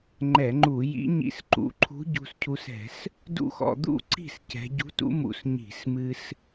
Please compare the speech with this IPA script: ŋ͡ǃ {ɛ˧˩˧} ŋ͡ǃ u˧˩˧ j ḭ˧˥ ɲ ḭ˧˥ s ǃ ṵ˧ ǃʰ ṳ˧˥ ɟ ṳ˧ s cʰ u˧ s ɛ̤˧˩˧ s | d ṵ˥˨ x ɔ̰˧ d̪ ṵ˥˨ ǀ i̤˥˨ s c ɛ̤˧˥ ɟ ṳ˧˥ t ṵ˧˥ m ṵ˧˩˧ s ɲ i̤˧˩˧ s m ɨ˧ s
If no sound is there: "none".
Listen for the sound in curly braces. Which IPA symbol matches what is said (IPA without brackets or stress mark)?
ɛ˧˩˧